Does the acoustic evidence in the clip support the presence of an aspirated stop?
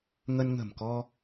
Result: no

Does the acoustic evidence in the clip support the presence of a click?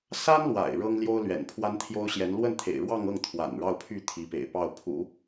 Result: no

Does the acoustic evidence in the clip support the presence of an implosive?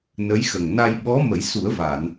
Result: yes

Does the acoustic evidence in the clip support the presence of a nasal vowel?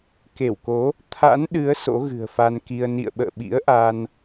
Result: no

